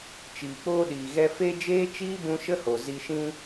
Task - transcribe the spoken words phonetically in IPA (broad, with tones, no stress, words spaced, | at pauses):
t͡ʃiː˨k͡poː˦ɗiː˨ɣɛ˦ fe˦ d͡ʒeː˦t͡ʃiː˦bũ˧ ʃə˦ho˨zi˧ʃĩ˦